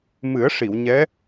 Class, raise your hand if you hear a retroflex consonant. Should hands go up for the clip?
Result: yes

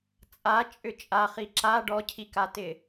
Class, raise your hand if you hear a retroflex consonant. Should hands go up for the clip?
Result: yes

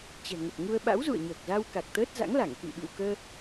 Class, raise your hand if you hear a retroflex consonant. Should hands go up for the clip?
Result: no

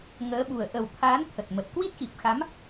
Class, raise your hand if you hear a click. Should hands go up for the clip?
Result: no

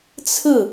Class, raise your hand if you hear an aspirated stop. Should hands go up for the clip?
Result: yes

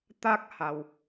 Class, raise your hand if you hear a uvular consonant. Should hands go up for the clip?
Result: no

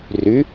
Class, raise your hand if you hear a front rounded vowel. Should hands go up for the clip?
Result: yes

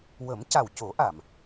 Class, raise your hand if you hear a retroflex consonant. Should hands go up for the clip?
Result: no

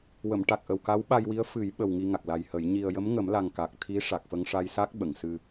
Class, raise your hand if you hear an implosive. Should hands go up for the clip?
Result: yes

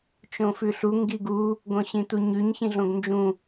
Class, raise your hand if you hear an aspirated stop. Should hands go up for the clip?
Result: no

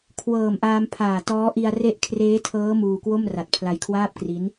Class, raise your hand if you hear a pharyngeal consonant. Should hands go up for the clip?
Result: no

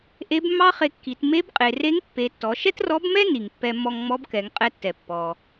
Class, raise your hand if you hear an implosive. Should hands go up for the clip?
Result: no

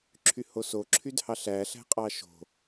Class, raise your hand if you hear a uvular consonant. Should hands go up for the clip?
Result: yes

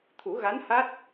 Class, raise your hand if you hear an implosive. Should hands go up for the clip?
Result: no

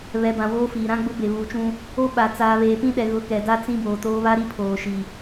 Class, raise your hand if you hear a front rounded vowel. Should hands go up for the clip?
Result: no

